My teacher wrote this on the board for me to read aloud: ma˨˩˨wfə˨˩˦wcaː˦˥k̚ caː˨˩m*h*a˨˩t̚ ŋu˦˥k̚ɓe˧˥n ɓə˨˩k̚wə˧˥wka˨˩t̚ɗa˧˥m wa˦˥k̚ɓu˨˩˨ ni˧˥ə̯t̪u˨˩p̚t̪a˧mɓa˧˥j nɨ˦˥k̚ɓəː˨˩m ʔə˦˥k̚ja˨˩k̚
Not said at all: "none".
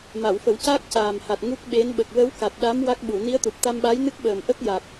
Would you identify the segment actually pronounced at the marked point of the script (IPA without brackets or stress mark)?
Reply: h